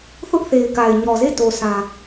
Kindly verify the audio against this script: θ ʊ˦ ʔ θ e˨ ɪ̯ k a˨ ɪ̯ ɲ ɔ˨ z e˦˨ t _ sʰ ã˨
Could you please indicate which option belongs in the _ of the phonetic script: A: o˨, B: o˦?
A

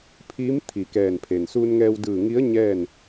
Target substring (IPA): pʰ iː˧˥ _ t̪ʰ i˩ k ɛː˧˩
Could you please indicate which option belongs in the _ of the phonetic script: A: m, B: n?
A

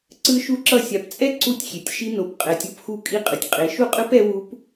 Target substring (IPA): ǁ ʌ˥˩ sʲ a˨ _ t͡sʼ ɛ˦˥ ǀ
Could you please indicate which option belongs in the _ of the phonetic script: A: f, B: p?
B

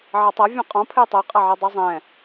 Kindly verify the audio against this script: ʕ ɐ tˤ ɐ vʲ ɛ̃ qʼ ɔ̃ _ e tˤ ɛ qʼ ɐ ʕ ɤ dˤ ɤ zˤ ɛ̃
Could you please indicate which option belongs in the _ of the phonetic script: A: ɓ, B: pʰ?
B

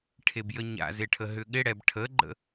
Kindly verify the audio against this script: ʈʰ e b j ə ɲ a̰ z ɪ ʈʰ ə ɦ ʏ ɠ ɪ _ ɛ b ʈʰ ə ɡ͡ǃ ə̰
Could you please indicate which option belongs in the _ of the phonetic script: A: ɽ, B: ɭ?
A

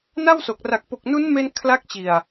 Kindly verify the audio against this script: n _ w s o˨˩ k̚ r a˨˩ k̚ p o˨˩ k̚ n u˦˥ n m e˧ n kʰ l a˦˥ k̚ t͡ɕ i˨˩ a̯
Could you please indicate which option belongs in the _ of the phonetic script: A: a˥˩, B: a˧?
A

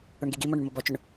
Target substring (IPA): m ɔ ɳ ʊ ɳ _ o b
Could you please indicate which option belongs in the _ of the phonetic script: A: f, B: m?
B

